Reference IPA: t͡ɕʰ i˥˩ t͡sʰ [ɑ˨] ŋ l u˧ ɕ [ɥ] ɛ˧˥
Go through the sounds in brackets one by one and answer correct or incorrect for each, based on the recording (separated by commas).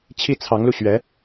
incorrect, correct